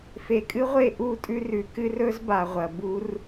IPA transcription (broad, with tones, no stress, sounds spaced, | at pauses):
f e˨ kʼ ɨ˦ ʁʷ e˦˨ ʔ u˦˨ tʼ ʉ˦ r ʉ˨ k ɨ˦ r ɵ˦ z b a˨ ʁʷ ɐ˨ b u˦ r